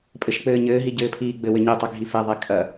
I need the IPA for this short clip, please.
pʼ ɘ ʃ k͡p ɘː ɲ ɘː ɦ i ɟ ɘː pʰ iː ɡ͡b ɘ w ɘ ɲ ɛ tˤ ɘ ɡʱ i f ɛ ðˤ ɛ kʼ ɐ

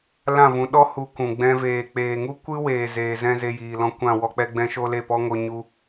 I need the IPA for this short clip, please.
l ã˦˨ v ũ˨˦ ɗ ɔ˦ h u˧ k ũ˨ ɡ͡b ɛ̃˧ v eː˨ k͡p eː˨ ŋ u˦ kʷ ɨ˦ w eː˨ z eː˨ z ɛ̃˧ z e˧ j iː˨ l ɔ̃˧ kʷ ã˦˨ w ɔ˧ k͡p ɛ˧ ɡ͡b ɛ̃˦ ʃ o˦ l e˦˨ p ɔ˦ ŋ o˧ ɲ u˦

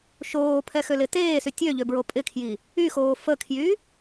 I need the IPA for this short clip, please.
ʃ oː pʰ ɛ x ø l ɪ t eː s y tʲ ø ʎ ø b ɹ o pʼ ɪ kʰ j i | y x oː f ə kʰ j y

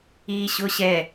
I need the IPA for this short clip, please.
iː ɕ ʊː ɕ ɛ

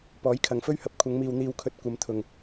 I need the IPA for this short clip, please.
p ɔː˨˥ j kʰ ɐ˨ ŋ f ɵ˥ ɥ h ɐ˨ p̚ kʷʰ ɐ˨˧ ŋ m iː˨ w n̪ iː˧ w kʰ ɵ˧ t̚ kʷ ɐ˨˧ m t̪ʰ ʊ˨ ŋ

